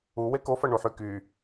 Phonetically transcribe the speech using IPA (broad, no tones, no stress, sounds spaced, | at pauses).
u w e k o f ɐ ɳ u ħ y k y